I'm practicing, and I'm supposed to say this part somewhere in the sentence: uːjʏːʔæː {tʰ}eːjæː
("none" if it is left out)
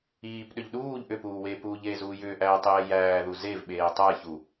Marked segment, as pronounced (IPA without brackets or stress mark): tˤ